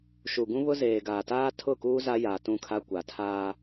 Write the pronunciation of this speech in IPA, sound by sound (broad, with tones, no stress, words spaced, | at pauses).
ʃu˨ɡũ˦βʊ˦ zeː˨ɡaː˨taː˦ tʰʊ˦˨kuː˦ za˦jaː˨tũ˦˨kʰa˦ kʷa˨tʰaː˦